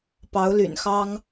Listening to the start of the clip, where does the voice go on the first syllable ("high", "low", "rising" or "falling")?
rising